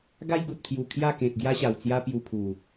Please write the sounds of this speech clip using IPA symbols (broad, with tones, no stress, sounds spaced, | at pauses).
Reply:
ɡ a˦ j ɡ u˨ t̚ pʰ j u˨˩ kʰ j a˥˧ k ẽ˨ t̚ ɡ j a˦ ɕ a˨˩ w t͡s j a˦ p j u˧ pʰ u˨˩